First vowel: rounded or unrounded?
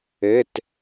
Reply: unrounded